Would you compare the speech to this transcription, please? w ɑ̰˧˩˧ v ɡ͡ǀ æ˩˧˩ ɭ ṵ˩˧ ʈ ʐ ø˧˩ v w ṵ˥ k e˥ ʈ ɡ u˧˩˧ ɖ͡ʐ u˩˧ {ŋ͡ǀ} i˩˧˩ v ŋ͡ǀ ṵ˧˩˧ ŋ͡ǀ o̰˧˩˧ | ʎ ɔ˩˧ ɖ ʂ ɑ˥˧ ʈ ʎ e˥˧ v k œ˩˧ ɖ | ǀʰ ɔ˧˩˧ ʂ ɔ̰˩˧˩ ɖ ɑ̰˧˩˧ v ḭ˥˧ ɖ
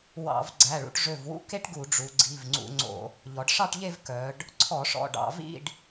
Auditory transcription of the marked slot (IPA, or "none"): ɡ͡ǀ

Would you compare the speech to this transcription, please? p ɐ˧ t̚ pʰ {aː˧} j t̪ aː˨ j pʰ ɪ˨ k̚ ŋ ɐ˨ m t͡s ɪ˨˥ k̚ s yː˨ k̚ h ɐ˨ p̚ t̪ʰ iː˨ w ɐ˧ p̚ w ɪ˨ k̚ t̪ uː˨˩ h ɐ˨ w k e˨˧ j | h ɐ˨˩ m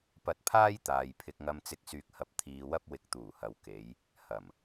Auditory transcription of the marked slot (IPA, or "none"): aː˥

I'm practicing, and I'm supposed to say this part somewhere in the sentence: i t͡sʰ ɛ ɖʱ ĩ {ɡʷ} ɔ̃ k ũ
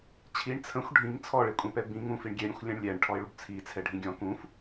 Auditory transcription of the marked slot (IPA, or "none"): ɡʲ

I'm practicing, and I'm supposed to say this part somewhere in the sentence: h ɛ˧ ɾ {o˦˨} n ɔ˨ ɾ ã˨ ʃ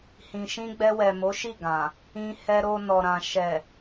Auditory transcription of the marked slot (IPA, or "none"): o˧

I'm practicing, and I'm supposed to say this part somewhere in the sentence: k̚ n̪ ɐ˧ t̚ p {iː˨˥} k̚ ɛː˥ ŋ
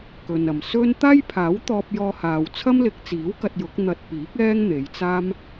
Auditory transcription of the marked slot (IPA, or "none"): iː˨˥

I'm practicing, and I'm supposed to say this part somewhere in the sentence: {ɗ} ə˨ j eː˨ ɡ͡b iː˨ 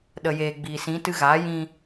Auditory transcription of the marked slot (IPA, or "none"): ɗ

